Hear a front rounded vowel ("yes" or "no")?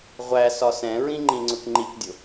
no